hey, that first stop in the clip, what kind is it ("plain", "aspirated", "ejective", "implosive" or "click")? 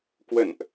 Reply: plain